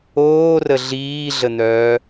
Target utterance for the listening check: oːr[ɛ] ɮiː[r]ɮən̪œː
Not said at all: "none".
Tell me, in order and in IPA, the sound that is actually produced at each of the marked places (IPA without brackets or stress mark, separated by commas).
ə, none